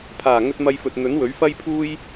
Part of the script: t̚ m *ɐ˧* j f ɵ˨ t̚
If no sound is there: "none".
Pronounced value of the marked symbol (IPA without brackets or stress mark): ɐ˧